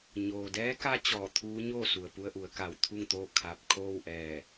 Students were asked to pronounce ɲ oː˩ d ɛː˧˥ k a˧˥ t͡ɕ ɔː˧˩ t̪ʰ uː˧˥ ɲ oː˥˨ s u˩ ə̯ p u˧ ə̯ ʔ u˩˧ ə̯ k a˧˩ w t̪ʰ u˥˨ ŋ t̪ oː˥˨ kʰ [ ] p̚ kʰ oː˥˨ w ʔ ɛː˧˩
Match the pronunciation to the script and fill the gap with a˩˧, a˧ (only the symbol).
a˧